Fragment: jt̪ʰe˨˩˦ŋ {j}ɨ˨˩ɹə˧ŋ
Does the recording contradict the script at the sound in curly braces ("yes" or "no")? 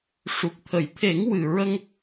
yes